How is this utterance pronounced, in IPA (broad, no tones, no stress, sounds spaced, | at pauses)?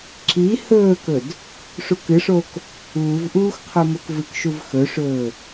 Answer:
ǁ i h ɵː k ɵ d | ʂ u k ɨ ʂ o k | uː v ʔ uː x qʰ o m o k v ɨ k ʃ u v x ɵ ʂ ɵː